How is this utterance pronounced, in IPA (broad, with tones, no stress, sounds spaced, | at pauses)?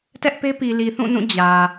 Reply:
t ɛ˦ ʔ p e˦ p i˨ l i˨ θ ũ˦˨ n ũ˦˨ d͡ʑ ä˨